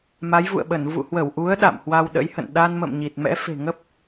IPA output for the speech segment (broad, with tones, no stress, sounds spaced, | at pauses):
m a˨˦ j v ṵ˧˨ ə̯ ɓ ə˧˩ n v ṵ˧˨ h w ə˧˩ w ʔ u˨˦ ə̯ ɗ a̰˧˨ m h w a˧ w ɗ ə̰˧˥ j h ə̰˧˨ n ɗ a˧ n m ə̰˧˨ m ɲ i˨˩ t̚ m ɛ̰˧˥ f e̤˨˩ ŋ ə˦˥ p̚